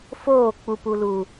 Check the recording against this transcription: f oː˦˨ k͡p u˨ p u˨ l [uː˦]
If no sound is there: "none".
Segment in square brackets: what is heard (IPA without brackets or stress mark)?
uː˨